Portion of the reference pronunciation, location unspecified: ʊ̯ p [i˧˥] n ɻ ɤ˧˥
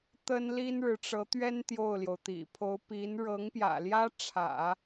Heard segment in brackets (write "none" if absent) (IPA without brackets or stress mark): i˧˥